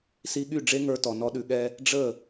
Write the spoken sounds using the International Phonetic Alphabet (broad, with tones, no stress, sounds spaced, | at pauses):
s i˧ ɠ y˦˨ ɖ͡ʐ e˦ ŋ ə˞˧ t ɔ˨ n ɔ˧ ɗ ʉ˨ ɠ ɛ˧ | ɖ͡ʐ ə˦˨